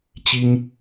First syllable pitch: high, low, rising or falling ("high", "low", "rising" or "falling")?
high